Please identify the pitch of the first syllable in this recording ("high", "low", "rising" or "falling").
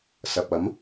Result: low